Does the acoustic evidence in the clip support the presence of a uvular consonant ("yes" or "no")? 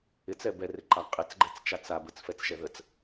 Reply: yes